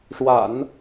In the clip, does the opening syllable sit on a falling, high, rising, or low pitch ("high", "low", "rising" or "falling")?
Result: low